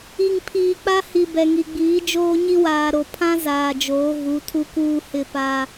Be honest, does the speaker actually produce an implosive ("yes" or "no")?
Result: no